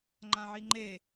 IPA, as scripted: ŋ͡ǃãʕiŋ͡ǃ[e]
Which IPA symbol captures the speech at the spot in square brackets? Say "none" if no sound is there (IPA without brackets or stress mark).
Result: e